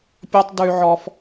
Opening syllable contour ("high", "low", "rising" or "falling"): high